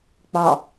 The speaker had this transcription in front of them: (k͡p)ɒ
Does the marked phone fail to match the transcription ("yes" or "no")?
no